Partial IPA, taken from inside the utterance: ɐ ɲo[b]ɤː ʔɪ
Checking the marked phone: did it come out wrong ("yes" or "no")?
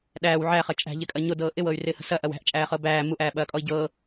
yes